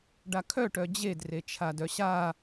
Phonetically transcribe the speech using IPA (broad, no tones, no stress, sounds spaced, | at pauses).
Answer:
ɖ a kʰ œ ʈ œ d͡ʑ e d r e t͡ʃʰ a d œ ɕ a